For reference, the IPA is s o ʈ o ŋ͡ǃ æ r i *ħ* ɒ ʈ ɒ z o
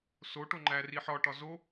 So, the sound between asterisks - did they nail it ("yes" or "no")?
yes